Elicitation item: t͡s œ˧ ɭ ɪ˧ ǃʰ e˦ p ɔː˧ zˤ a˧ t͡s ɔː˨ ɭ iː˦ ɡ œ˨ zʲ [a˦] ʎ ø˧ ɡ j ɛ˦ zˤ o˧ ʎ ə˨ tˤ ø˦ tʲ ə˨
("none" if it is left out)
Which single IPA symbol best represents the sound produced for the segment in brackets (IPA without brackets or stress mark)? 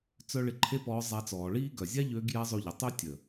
a˦